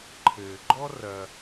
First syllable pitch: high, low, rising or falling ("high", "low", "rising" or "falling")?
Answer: low